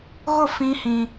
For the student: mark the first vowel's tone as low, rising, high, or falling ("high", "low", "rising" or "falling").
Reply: falling